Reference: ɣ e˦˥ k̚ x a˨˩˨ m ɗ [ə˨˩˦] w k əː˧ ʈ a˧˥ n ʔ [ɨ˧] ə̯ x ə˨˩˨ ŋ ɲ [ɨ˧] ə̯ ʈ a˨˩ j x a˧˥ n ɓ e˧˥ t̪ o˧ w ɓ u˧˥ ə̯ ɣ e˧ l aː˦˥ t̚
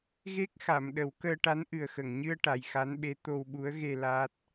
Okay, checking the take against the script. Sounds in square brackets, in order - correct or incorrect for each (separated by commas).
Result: correct, incorrect, correct